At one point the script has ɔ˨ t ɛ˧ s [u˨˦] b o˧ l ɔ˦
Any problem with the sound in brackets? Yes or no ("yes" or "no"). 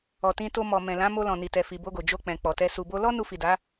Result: yes